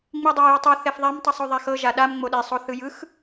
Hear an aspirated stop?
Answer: no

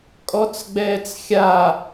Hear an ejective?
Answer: yes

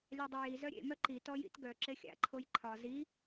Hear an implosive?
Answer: no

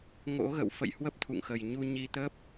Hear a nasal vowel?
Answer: no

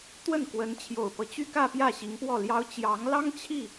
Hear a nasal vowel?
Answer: no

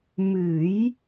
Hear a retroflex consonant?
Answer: no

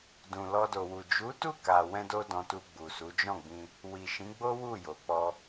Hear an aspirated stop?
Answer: no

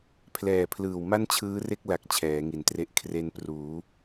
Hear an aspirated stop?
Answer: yes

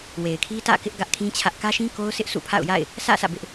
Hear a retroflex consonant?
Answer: no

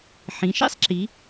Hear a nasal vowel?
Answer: yes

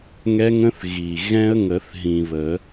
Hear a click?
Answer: no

